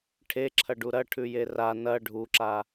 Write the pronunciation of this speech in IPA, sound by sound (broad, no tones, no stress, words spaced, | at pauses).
ʈʰeǁʰɐɖu ɾɐʈʰʉje ra nɐ ɖʱuǁa